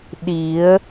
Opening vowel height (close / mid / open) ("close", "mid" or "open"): close